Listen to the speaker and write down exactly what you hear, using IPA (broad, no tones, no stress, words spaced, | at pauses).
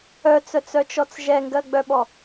œt͡sœt͡sœt͡ʃɔt͡s ʒɛŋɡɜɡ͡bœɓɔ